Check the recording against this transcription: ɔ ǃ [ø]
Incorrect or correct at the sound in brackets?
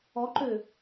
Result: correct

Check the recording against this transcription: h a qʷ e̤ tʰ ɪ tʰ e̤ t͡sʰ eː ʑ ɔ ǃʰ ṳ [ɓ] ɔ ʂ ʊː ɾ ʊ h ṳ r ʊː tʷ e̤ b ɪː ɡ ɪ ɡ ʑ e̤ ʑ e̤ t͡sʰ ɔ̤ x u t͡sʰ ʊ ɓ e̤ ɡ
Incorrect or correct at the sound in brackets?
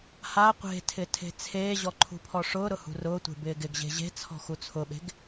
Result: incorrect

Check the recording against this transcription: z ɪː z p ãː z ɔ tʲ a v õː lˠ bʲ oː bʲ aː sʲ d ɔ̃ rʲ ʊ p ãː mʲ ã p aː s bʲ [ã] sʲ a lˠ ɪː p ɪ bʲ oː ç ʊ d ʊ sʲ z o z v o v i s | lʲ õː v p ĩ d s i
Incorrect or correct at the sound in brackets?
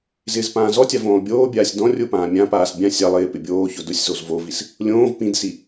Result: correct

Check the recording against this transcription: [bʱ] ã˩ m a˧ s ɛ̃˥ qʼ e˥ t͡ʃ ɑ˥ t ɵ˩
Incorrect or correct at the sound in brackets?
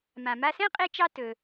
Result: incorrect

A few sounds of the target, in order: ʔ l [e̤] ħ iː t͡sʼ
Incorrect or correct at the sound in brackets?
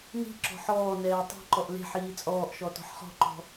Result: correct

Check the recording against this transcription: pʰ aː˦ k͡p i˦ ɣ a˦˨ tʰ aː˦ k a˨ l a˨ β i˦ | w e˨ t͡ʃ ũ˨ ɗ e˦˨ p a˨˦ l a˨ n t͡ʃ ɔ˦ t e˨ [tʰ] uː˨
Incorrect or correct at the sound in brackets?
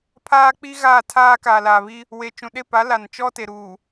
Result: incorrect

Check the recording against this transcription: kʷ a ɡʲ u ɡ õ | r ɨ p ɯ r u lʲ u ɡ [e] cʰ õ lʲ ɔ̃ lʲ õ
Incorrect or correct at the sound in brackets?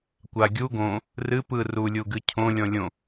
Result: incorrect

